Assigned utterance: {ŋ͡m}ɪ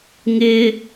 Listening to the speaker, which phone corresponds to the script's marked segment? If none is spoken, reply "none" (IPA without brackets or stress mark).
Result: ŋ